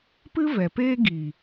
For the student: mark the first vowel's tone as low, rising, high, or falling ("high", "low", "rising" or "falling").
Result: high